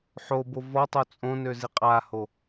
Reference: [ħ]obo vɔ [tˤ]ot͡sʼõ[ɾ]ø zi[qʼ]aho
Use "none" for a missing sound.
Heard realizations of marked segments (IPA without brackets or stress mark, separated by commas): ħ, tˤ, n, qʼ